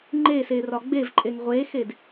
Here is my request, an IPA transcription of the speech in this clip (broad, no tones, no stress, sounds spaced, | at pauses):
ŋ͡ǃ eː s eː r ɒ ɡ͡b e v ǃʼ e ŋ ʁʷ eː x e d